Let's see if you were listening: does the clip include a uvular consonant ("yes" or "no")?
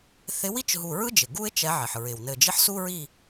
no